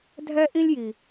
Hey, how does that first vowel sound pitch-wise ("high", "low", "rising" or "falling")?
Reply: high